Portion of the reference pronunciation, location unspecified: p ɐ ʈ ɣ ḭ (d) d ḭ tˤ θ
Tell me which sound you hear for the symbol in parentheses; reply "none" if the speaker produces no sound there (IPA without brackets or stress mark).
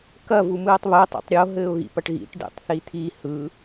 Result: ʈ